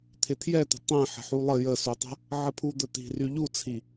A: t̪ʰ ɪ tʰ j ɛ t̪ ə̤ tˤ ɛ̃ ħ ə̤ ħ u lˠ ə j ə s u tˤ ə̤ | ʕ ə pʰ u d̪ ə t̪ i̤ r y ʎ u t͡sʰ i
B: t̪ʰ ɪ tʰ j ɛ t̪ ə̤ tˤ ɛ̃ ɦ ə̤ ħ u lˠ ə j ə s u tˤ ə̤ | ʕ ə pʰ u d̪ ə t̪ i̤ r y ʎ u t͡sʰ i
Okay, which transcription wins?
A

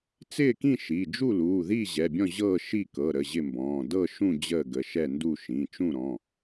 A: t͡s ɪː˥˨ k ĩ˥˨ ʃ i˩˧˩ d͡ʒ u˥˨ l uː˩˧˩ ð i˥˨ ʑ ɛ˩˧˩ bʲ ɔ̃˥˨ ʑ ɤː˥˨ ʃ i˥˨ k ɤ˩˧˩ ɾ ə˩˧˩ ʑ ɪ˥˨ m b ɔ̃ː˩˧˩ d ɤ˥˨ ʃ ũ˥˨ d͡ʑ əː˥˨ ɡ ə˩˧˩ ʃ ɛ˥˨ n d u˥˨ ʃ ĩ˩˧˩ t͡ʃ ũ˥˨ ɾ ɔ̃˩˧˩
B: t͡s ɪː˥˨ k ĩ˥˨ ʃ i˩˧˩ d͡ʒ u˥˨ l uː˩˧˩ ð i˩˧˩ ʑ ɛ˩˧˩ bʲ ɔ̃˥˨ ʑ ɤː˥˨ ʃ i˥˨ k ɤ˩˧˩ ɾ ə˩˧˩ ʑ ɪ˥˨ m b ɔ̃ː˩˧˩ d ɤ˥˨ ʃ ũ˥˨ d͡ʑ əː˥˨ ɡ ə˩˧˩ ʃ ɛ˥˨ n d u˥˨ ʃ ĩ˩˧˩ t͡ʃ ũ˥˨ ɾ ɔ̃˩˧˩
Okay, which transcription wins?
A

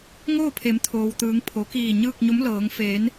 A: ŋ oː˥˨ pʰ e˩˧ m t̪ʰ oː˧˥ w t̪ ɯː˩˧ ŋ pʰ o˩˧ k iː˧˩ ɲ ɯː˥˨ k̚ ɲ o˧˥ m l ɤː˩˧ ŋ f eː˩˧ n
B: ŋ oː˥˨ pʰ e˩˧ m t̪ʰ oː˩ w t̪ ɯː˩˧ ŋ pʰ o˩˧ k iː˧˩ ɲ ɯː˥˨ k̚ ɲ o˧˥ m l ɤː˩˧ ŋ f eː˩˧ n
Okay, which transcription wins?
B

